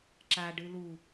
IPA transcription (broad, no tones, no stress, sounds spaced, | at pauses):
ǁ a ɖ ɨ l u